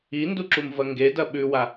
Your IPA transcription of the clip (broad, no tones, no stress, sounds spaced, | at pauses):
i n d u ǁ u m v ɐ ŋ ɡ e d ɐ ɓ ʉ w a